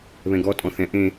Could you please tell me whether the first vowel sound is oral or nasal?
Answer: nasal